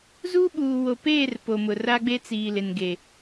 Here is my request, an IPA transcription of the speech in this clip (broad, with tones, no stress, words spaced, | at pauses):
zuː˦ɓuː˨wo˨peː˦˨r po˨mʊ˨ ra˦ɡ͡be˦ t͡siː˨ lɪ˨nɡe˨